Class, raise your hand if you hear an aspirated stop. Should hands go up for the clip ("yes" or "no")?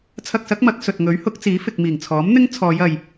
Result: yes